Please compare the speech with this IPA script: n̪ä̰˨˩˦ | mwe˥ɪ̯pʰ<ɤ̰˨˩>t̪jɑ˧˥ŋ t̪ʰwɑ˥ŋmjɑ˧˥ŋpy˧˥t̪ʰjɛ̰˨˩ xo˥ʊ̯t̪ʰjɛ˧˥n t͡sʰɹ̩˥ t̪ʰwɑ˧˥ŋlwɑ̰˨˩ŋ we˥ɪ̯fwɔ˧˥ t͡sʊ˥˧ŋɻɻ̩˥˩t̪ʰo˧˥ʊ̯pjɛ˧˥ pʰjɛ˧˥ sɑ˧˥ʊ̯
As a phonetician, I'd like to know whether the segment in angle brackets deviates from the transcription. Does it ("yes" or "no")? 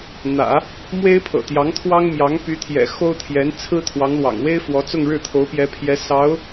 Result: no